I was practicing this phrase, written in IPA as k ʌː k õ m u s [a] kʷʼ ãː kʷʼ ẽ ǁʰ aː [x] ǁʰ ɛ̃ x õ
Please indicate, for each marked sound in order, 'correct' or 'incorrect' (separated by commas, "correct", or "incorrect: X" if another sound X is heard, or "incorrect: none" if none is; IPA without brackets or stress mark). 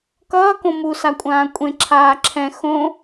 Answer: correct, incorrect: none